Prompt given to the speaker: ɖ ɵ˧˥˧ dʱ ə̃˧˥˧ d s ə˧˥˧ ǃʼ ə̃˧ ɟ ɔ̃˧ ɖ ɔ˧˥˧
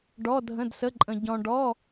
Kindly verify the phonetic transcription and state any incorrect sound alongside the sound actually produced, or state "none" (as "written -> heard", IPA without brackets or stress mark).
ɵ˧˥˧ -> ɔ˧˥˧